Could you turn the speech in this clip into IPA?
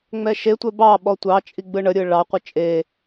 ŋ͡m ɛ ʃ e tʷ ɛ b ɑ ɓ ɔ tʷ ɑ t͡ʃʼ i ɡ͡b ɯ ɳ ə ɾʲ ɯ ɭ ɑ qʷ ɯ t͡ʃʼ e

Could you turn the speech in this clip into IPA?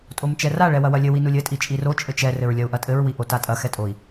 tʼ o m t͡ʃ ɛ r a ɭ ɛ w ɐ w ɐ lʲ ɘ w i n u lʲ ɘ tʼ i t͡ʃʼ i r o t͡ʃʼ ɘ t͡ʃ ɛ r ɘ ɹ lʲ ɐ u̯ ʔ ɐ tʼ ɘ ɹ w i ʔ o t a tʼ ɐ x ɛ tʼ o i̯

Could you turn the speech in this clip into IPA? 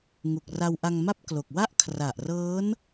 ŋ u˨˩ k̚ r a˧ w ʔ a˧ ŋ m a˥˩ p̚ k l o˨˩ k̚ w a˥˩ ʔ kʰ r a˨˩ ʔ r ɤː˦˥ n

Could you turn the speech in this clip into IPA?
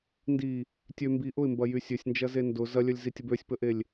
n d i | tʲ ø m b i ʔ ʊ ɪ̯ m b ɐ j y sʲ ø sʲ n d͡ʒ ɐ z e n d ʊ z ɐ lʲ œ lʲ z i tʲ ə b ø sʲ p ə ʔ e lʲ

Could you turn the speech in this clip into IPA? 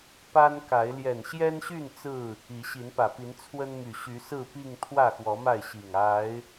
p a˦ n k a˨˦ ɪ̯ l j ɛ˨˩ n ɕ j ɛ˦ n ɕ y˥˨ n t͡s ɹ̩˥˨ | i˨˦ ɕ i˨˦ n p ä˨˩ p i˨˦ n t͡sʰ w ə˦ n m y˨˩ ɕ y˨˦ s ɹ̩˥˨ p i˥˨ ŋ t̪ʰ w ä˥˨ x w ɔ˨˦ m a˥˨ ɪ̯ ɕ i˨˩ ŋ a˨˦ ɪ̯

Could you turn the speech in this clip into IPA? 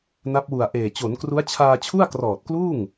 n a˦˥ p̚ w u˨˩ a̯ ʔ eː˨˩ t͡ɕ o˩˦ n k r u˦˥ a̯ t͡ɕʰ aː˧ t͡ɕʰ u˥˩ a̯ k r ɔː˨˩ t̚ k l uː˥˩ ŋ

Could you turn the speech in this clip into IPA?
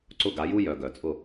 ǀ ʊ˥˨ ɡ a˩˥ j u˥ j œ˩˧ ɡ œ˩˧ t͡sʼ ʊ˥˨

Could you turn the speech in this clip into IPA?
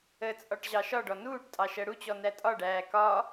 ə t͡sʼ ɒ ʈ ʑ ɑ ʃ ɒ ɖ ɔ n uː ʈ tʼ ɑ ʃ ɜ ɽ u t͡ɕ ɔ n æ tʼ ɒ ɖ æː k ɒ

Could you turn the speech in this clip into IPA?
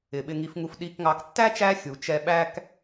ɪ˩ ɓ ɪ˨ ŋ i˨ f ŋ u˨ f ɗ i˨ k ŋ ɑ˨ k tː æ˥ t͡ʃ æ˦ xʲ u˩ t͡ʃ ɛ˦ ɓ æ˥ k

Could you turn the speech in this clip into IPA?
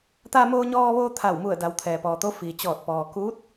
t̪ a˧ m oː˧ ɲ ɔː˧ ʋ oː˧ t̪ʰ a˧˩ w m u˧˩ ə̯ d a˩˧ w t̪ʰ ɛː˩ p ɔː˩ t̪ o˧˥ f iː˩ t͡ɕ ɔː˧˩ t̚ p ɔː˩ k uː˧˥ t̚

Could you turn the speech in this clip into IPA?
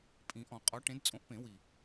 pʼ ĩ˨˩˦ ʔ ɔ̃˨˩˦ qʼ ɔ˨˥ ʈ ẽ˨˥ d t͡sʼ õ˨˥ ʔ p ẽ˨˩˦ w i˨˩

